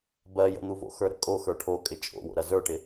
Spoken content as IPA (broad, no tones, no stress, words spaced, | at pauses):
bɜjə̰n̪uvo̰ xə˞ɾə̰ kʼo xə˞ʈʰo kʼɪt͡ʃʼo̰wo̰ɾɐ zə˞ʈɪ